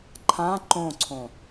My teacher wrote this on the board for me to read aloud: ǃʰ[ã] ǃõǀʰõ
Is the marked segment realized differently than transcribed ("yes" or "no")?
no